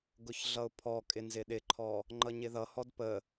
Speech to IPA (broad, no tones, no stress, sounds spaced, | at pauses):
ɡ ʊ ç ɮ ʌ ʊ̯ pʰ ɔ kʼ ɪ n z ɪ ɗ ɪ ǃʰ ɔ | ŋ͡ǃ ʌ ɲ ɪ ð ʌ h ɔ d p ə